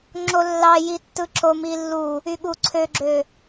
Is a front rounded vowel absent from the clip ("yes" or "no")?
no